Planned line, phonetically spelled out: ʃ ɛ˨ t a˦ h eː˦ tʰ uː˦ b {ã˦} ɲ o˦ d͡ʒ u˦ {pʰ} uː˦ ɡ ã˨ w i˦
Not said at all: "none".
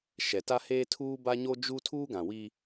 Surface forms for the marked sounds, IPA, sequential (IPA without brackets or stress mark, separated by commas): a˦, tʰ